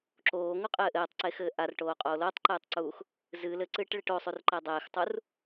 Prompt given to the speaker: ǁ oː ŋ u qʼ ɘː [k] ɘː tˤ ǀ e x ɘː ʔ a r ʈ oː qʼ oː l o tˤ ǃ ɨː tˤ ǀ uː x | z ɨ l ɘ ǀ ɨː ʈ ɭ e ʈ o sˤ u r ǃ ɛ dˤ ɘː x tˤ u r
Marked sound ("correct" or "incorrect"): incorrect